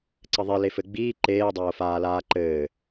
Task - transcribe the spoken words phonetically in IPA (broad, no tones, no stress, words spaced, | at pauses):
ǀɘðˤi lefɘɡ͡biː ǃeːdˤoːfaːlaː ǃɘː